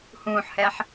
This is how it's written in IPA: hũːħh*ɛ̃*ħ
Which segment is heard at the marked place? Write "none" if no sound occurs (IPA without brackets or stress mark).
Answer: ɛ